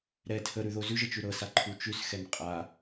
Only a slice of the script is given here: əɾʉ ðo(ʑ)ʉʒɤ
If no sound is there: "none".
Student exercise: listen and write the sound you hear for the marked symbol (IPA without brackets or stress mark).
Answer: z